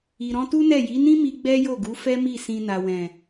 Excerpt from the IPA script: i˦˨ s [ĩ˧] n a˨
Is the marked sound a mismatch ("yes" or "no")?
no